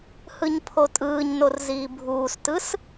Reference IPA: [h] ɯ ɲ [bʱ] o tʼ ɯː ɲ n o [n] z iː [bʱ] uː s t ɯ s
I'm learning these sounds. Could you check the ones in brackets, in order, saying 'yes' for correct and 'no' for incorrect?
yes, no, no, yes

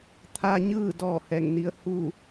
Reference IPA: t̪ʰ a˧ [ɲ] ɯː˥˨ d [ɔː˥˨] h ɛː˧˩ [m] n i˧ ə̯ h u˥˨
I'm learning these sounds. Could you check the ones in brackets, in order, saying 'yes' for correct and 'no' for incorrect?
yes, yes, no

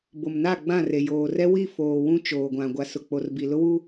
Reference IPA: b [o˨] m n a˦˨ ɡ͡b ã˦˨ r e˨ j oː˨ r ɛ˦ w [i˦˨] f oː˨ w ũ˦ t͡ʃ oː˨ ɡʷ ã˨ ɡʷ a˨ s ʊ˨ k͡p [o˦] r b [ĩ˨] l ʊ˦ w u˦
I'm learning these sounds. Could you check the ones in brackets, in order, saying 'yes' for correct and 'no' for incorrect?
yes, yes, no, no

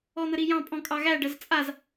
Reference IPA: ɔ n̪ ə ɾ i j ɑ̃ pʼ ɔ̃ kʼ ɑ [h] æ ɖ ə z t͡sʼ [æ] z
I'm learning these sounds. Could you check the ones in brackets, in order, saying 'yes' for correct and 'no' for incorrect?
no, no

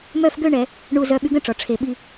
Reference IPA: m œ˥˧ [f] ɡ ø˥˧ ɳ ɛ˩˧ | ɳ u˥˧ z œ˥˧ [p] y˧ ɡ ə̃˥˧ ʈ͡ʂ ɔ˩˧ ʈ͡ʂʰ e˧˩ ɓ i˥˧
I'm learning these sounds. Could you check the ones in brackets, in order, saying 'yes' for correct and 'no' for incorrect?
yes, no

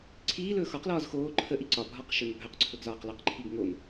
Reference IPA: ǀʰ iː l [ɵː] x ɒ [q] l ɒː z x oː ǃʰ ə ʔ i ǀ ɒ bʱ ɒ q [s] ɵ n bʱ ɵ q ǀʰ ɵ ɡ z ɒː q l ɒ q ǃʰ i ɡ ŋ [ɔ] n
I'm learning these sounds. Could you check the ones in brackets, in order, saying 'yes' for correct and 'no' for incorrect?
yes, yes, no, no

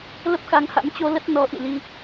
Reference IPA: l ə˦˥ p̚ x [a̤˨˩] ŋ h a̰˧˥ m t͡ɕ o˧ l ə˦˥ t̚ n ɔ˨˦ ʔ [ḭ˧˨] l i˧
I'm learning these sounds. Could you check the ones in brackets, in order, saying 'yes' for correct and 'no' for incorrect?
no, yes

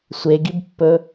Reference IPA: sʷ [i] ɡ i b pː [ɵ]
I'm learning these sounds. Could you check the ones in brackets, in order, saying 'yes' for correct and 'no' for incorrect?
no, yes

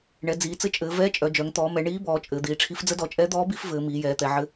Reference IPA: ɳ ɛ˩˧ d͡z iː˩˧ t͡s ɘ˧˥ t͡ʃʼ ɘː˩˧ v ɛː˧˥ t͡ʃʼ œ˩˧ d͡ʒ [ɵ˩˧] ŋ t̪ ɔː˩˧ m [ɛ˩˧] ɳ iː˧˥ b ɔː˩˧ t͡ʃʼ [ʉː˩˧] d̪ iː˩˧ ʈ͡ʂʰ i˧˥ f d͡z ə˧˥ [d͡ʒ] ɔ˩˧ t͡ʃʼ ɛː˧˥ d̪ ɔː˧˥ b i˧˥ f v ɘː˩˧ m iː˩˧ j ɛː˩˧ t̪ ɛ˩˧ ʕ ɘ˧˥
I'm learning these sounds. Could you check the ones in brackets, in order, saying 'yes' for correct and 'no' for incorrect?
no, yes, no, no

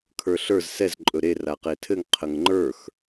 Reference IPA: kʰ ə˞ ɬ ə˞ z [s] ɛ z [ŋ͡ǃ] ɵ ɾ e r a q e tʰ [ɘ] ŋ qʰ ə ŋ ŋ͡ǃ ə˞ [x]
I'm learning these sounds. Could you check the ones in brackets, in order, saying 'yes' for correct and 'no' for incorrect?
yes, no, yes, yes

